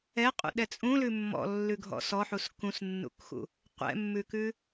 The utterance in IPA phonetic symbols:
ɛ qʼ ṵ ɗ ɛ t͡sʼ ũ l ʉ mː ɔ̰ lː ʉ ɡʱ ɔ̰ s ɔ ħ u s k ũ s nː ṵ k x ṵ | qʷ ɛ̰ mː ʉ k ʉ

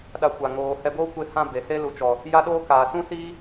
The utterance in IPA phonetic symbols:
ɗ a˧ kʷ a˨ ŋ oː˨ h ɛ˧ b oː˦ kʷ e˧ h ã˧ b e˨ s e˦ l u˨ t͡ʃ ɔ˨ | j a˦ ɗ oː˦ k aː˨ s ũ˦ s iː˦

